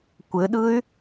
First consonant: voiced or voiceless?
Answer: voiceless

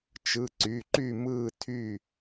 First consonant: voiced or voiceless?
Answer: voiceless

